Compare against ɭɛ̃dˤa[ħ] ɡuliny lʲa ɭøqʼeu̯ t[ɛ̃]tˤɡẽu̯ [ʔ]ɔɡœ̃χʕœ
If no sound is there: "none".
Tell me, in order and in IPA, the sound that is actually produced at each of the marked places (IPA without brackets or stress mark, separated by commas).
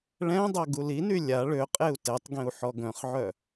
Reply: none, ɛ, ħ